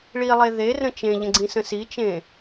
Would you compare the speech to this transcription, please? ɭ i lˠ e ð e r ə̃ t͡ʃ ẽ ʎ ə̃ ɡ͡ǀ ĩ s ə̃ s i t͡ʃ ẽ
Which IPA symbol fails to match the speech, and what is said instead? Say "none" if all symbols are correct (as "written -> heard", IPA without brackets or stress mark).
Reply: none